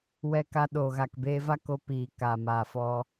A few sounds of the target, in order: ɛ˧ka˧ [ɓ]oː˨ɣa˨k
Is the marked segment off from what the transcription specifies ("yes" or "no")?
yes